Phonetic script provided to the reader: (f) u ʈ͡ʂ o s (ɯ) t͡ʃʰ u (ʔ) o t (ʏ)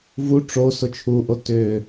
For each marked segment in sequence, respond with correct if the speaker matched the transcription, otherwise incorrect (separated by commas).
incorrect, incorrect, correct, correct